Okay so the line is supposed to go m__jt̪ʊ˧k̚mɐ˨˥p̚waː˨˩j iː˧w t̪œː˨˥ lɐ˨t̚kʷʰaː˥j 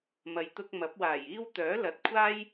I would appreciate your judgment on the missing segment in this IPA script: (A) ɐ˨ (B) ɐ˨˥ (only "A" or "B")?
A